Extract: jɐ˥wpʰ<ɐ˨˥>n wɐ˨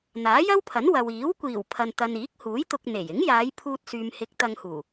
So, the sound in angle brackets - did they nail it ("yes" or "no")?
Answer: yes